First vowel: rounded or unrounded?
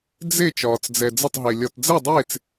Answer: unrounded